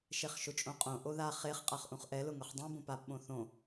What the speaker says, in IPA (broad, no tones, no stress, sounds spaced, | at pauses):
ʃ e χ ʃ ʊ t͡ʃʼ õ qʼ õ ʔ o ð a χ e χ qʼ a χ ʔ ũ χ ʔ ɛ l ʊ ŋ ʊ χ dˤ ũ b õ p a p ɓ õ θ õ